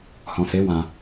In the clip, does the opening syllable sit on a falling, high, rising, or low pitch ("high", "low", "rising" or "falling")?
low